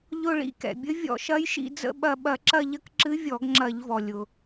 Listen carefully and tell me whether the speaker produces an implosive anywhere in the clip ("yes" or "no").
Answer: yes